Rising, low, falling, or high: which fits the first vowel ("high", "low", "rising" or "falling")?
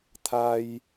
high